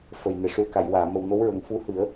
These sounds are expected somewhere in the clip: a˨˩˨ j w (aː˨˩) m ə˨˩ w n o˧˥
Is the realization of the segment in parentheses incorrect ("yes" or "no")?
yes